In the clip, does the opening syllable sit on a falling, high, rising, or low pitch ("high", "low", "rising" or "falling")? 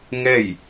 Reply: falling